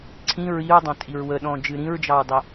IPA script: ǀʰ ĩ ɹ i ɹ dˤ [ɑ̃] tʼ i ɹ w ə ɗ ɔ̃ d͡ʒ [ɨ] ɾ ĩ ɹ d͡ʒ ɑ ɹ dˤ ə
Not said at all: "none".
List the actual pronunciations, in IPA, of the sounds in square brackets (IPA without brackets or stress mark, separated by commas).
ɑ̃, ɨ